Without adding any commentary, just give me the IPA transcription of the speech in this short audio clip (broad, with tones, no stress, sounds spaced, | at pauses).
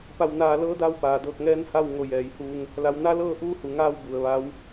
p a˧˩ w n aː˧˩ l ɤː˧˥ d a˧ w p aː˩ d ɤː˧˩ k̚ ŋ ɛː˧˥ n h a˥˨ w ŋ o˧˩ j ɛː˩˧ j h uː˧ ŋ | l a˩˧ w n a˧˥ l ɤː˥˨ ʔ uː˧˥ h u˩ ŋ aː˧ w b u˩ ə̯ ʋ a˧˥ w